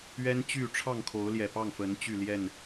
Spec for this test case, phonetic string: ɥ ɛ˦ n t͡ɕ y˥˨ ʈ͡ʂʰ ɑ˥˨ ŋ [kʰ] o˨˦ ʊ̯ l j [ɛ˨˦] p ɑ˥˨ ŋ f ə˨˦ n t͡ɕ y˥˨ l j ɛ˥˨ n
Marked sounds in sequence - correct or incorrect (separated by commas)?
correct, incorrect